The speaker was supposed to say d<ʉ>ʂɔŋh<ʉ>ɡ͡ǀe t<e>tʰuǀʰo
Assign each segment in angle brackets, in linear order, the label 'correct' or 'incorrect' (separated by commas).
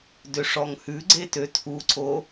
incorrect, correct, incorrect